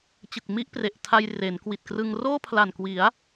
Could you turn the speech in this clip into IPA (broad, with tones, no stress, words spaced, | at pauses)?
t͡ɕɯ˨˩k̚ mi˥˩ʔpre˨˩ʔtʰa˧j re˩˦nkwi˨˩t̚krɯ˧ŋ roː˥˩pʰla˨˩nkwi˩˦a̯